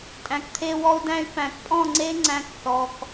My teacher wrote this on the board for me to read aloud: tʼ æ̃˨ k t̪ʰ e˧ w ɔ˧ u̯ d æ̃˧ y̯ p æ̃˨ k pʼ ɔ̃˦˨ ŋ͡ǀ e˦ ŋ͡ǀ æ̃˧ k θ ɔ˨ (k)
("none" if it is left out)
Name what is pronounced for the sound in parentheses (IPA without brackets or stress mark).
k